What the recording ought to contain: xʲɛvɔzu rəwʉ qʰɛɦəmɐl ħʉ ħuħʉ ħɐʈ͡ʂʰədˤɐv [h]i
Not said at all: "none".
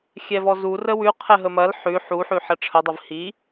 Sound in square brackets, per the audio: h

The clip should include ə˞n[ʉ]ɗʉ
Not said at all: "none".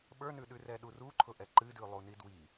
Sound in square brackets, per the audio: ʉ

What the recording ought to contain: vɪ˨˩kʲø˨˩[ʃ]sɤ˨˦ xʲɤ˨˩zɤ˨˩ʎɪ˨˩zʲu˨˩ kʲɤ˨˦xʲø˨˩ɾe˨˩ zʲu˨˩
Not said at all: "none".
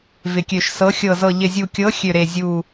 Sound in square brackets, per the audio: ʃ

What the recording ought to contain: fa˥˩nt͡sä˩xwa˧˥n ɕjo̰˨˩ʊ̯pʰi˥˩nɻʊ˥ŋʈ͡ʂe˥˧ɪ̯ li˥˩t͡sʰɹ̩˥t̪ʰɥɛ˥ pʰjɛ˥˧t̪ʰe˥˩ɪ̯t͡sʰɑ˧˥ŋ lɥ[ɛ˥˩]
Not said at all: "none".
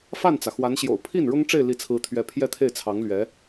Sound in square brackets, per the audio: ɛ˧˥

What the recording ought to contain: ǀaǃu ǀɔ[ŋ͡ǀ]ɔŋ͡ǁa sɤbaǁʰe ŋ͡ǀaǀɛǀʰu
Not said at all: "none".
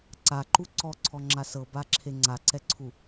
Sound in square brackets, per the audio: ǀʰ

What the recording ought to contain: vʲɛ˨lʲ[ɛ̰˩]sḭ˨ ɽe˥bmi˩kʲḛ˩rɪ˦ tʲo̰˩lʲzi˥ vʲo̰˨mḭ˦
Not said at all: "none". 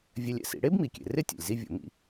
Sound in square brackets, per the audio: ɛ̰˩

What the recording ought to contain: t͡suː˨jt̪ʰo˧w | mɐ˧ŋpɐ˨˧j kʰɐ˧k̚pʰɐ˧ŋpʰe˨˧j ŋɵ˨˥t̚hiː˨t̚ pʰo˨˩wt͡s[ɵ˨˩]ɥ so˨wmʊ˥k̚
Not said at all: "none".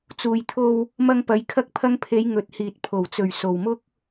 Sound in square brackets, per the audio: ɵ˨˩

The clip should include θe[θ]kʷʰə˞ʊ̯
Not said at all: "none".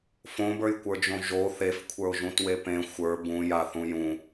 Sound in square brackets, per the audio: f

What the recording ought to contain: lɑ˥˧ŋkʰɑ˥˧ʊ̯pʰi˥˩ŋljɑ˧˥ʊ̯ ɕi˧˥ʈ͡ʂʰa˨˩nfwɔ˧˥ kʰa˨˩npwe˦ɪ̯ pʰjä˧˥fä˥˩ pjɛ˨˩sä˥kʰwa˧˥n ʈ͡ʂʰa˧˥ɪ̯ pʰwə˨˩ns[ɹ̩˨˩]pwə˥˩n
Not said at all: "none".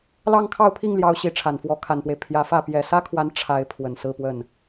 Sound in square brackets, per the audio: ɹ̩˥˧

